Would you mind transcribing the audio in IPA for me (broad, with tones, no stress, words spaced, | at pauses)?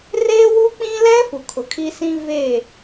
reː˦wu˦k͡pĩ˦lɛ˦ fu˨kʰʊ˨kʰi˦sĩ˦ veː˦˨